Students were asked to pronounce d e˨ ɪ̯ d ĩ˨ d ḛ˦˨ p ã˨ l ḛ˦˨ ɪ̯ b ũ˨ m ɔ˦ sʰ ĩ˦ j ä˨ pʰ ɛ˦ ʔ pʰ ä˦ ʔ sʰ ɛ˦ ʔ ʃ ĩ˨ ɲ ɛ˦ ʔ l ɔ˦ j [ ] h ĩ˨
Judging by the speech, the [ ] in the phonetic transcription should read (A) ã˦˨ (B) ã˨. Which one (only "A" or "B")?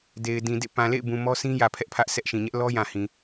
B